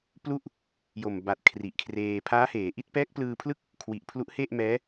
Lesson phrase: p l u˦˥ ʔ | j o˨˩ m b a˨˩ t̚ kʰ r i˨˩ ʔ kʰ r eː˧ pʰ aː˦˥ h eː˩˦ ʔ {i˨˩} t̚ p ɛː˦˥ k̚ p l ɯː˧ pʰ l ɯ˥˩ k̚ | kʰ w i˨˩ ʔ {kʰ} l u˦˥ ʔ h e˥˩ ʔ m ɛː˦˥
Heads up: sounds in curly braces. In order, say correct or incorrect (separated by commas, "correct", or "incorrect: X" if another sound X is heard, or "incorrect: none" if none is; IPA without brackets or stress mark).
incorrect: i˦˥, incorrect: pʰ